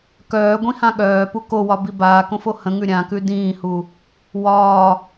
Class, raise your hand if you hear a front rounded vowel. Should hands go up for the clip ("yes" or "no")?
yes